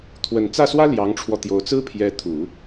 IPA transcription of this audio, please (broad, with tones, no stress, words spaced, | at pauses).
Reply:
t̪ʰwə˨˩nt͡sä˥˩swä˥ ljɑ˧˥ŋʈ͡ʂʰwɔ˧t̪jo˧˥ʊ̯ t͡sɹ̩˥pʰjɛ˧˥t̪ʰu˨˩˦